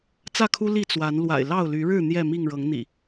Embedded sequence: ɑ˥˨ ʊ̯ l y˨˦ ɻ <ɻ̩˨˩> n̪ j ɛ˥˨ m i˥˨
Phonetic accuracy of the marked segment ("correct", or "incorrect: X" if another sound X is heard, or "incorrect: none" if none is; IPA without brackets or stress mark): incorrect: ɻ̩˥˨